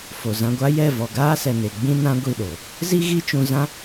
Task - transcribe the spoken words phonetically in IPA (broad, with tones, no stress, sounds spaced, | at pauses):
f o˨ z ã˧ ɡʷ a˦ j ɛ˦˨ v ɔ˨ ɡ aː˦ s ɛ˨ n e˨ ɡ͡b ĩ˦ n ã˦ ɡʷ i˦˨ ɗ o˨ | z i˦ ɣ i˦ t͡ʃ ũ˧ z ã˦